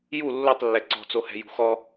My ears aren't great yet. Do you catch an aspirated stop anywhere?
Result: no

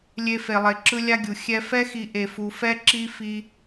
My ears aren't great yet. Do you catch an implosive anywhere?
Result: no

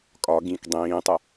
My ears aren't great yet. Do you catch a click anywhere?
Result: no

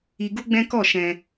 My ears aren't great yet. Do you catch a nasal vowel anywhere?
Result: yes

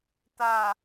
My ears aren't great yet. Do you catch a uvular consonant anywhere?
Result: no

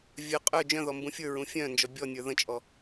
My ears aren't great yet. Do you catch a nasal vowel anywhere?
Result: yes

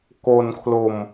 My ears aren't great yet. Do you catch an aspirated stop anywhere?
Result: yes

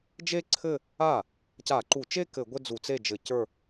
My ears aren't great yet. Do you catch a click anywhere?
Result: yes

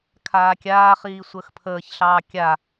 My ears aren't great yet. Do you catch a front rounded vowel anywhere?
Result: no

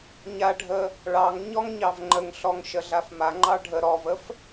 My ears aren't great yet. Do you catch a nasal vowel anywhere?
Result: no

